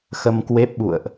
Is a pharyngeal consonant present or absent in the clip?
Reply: absent